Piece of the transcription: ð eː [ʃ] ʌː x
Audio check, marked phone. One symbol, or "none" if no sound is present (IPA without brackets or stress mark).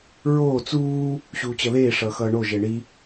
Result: ʂ